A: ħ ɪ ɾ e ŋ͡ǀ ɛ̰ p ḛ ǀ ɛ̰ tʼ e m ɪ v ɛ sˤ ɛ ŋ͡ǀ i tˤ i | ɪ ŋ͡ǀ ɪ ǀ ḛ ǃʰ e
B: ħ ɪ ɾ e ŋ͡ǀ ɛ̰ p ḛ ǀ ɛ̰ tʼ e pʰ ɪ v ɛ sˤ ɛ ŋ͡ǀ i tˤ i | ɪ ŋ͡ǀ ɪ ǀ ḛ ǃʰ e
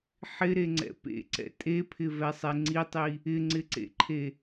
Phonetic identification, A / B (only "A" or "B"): B